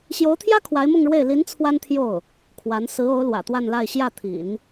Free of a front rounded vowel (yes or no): yes